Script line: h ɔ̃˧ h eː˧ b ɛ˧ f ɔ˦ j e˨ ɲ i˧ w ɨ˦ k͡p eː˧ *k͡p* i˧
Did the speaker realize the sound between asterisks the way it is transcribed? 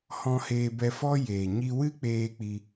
yes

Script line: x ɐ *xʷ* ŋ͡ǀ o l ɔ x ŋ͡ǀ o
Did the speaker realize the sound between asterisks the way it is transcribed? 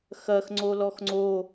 no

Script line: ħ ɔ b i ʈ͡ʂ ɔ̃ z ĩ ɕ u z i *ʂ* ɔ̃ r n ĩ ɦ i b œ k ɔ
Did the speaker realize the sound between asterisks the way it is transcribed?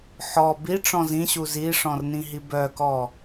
yes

